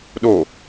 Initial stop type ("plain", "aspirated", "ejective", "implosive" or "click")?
implosive